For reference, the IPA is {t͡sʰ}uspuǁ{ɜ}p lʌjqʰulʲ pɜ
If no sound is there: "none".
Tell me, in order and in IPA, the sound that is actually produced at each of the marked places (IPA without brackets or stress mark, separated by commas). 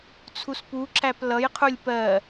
t͡sʰ, æ